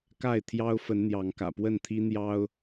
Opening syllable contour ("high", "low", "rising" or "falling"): falling